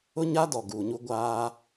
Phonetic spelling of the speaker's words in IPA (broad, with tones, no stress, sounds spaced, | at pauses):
ʊ˦ ɲ a˦ d ɔ˨ ɡ uː˨ ɲ u˦ ɡʷ aː˦